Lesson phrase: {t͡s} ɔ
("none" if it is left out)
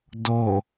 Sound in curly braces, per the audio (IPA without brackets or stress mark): d